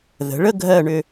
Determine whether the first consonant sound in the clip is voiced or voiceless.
voiced